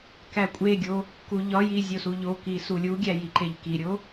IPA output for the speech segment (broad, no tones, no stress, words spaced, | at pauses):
kækʷʼeɡʲo | kuʎɒji zʲosuʎoki sulʲuɡʲæ jiǃeʎkiɾʲo